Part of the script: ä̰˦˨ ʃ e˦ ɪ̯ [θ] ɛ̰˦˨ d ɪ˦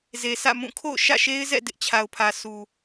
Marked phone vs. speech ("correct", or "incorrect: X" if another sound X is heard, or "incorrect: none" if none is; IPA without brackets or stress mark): incorrect: z